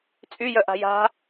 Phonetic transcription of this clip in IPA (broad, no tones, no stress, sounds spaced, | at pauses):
t͡sʼ y j œ ʔ a̤ j a̤